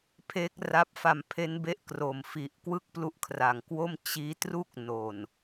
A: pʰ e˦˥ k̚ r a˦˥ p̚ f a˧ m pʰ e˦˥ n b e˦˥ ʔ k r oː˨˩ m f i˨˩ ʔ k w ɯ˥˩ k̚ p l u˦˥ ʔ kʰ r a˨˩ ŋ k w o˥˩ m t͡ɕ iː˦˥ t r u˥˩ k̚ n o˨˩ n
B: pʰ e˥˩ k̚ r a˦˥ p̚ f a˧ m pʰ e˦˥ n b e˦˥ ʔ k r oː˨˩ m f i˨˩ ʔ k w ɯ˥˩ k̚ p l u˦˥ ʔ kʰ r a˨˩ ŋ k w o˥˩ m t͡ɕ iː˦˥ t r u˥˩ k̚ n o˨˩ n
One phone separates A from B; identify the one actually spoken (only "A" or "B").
A